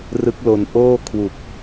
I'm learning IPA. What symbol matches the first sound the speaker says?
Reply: r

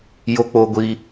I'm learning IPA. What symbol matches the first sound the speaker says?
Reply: j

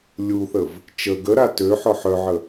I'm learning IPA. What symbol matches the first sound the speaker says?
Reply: lʲ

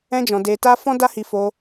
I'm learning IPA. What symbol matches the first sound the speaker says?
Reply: ɛ̃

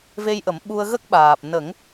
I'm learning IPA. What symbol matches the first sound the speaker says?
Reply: v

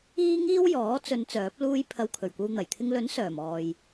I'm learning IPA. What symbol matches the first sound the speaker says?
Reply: iː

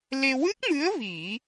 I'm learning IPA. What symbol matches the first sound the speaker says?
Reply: l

